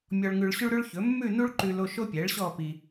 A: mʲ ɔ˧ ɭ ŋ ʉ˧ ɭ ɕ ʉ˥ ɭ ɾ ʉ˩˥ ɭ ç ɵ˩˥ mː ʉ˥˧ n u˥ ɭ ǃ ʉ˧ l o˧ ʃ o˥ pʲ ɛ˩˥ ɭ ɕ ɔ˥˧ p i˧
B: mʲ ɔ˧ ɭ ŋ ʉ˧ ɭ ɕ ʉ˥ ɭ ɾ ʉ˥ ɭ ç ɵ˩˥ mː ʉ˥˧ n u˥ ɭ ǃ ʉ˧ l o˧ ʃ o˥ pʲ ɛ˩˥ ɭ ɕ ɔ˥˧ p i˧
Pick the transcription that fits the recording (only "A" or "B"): B